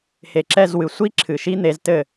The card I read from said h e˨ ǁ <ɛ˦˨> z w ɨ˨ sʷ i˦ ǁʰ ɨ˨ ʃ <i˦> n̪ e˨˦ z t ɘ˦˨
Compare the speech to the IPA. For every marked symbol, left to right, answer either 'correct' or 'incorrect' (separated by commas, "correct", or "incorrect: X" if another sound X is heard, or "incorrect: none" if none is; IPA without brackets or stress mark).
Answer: correct, correct